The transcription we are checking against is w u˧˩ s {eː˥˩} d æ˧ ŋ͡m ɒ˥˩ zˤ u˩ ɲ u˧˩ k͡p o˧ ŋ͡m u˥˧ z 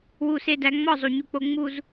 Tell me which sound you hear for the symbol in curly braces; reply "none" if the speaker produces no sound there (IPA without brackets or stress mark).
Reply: e˥˩